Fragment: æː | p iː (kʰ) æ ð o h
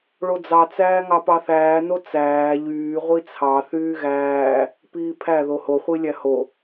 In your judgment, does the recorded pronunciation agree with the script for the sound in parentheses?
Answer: no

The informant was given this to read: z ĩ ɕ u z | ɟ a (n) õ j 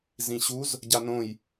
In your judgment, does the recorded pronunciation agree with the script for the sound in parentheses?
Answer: yes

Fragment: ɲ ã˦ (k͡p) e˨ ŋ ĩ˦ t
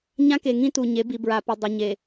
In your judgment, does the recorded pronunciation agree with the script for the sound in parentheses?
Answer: no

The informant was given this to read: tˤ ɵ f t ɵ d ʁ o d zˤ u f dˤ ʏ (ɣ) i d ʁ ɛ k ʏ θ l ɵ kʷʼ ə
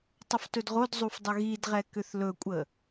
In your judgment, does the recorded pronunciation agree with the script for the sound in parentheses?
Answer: yes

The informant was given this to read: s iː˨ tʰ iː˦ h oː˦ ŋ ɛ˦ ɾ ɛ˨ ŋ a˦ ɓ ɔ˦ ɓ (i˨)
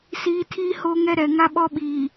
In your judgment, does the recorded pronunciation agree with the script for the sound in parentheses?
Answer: no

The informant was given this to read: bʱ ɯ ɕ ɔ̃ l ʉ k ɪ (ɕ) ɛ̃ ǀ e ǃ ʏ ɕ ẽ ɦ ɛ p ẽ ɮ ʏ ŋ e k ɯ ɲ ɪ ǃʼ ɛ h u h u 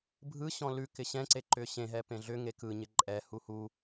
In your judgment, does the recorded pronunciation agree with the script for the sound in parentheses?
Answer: yes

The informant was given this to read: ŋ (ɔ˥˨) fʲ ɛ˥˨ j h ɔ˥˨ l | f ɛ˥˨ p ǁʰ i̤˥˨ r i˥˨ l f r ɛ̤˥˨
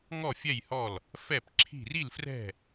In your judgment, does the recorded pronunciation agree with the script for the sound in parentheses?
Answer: yes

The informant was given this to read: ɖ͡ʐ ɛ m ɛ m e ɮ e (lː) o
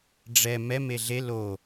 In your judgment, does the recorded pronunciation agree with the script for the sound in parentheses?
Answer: no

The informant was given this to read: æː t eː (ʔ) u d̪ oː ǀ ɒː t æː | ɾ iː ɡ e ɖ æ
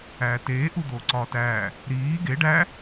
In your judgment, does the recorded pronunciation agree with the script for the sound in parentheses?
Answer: yes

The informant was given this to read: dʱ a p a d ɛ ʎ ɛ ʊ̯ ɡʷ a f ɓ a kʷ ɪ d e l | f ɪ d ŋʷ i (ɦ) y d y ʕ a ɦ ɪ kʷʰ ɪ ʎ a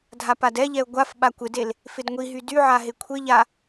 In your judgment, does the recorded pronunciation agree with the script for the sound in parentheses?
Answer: yes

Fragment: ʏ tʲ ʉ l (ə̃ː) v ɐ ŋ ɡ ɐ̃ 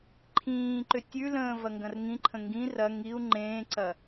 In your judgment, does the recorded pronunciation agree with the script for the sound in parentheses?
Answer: yes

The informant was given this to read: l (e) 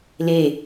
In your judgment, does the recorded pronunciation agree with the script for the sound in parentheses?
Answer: yes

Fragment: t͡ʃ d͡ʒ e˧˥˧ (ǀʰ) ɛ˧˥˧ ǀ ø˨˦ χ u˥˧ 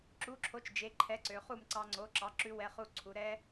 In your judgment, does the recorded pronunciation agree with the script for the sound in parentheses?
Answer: no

